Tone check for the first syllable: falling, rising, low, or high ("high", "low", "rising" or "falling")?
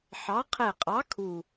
rising